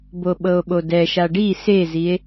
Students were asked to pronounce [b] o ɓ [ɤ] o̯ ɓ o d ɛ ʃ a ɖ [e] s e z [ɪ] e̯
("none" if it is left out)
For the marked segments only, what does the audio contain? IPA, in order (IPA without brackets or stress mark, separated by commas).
b, ɤ, i, i